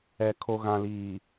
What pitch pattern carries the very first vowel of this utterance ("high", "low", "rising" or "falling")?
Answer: low